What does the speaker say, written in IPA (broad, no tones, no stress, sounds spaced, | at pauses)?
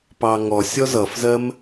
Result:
p ɑ ŋ ɔ sʲ ɔ z ʌ f z ɜ m